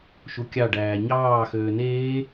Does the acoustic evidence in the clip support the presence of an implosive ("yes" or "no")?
no